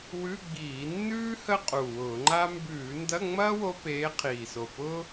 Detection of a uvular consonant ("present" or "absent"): present